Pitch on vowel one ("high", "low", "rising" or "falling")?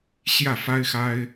falling